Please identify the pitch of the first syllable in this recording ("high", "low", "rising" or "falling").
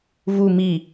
low